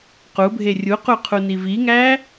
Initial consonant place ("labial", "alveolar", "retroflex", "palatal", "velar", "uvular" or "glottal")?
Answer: uvular